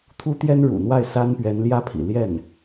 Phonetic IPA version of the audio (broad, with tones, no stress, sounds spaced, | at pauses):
t̪ʰ u˥ t̪ j ɛ˥ n ɻ ṵ˨˩ n̪ w a˥˩ ɪ̯ s a˥ n p ɥ ɛ˧˥ n l j ä˥ pʰ ḭ˨˩ l j ɛ˥˩ n